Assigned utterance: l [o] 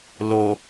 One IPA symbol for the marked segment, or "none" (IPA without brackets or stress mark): o